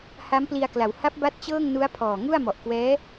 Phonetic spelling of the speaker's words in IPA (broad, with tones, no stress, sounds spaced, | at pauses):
h a˦˥ m p l i˧ a̯ k l a˩˦ w h a˦˥ p̚ b a˦˥ t̚ t͡ɕ ɤː˥˩ ŋ n u˦˥ a̯ pʰ ɔː˨˩ ŋ u˥˩ a̯ m ɔ˨˩ ʔ k w ɛː˦˥